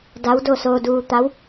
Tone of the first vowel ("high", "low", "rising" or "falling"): rising